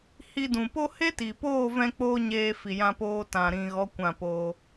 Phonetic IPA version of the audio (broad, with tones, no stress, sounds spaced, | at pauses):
h i˧ d ũ˨ p o˦ h e˦ t i˨ p oː˦˨ v ɛ̃˦ k͡p oː˦ ɲ eː˧ f i˨ j ã˧ p oː˧ t ã˨ ɾ ĩ˨ ɣ ɔ˨˦ kʷ ã˦˨ p oː˧